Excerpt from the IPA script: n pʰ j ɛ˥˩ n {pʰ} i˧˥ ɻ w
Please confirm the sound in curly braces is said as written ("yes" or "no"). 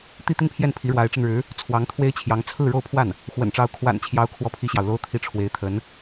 yes